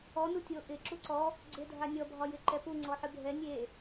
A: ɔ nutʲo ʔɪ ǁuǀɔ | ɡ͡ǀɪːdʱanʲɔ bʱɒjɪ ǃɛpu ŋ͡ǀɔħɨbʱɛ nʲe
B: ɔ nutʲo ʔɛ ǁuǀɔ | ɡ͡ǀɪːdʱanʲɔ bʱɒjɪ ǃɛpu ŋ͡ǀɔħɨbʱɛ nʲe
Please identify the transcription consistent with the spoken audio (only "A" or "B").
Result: A